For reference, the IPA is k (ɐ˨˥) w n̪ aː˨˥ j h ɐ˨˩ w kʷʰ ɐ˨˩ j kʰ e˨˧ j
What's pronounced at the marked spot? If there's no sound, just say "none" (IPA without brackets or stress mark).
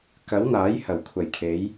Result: ɐ˨˥